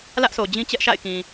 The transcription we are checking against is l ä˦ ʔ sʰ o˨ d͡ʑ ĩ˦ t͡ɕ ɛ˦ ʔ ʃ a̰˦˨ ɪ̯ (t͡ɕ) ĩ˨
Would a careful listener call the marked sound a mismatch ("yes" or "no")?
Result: yes